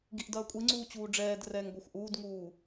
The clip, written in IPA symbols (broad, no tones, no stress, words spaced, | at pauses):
ɡiʔdɐːkʷʼiŋ͡ǀuː t͡ɕuːɖ͡ʐɛːdrɛːŋ ɡʷaxʷʔuːdŋuː